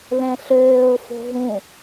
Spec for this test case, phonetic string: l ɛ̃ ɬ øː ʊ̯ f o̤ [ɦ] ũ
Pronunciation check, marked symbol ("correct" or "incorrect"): correct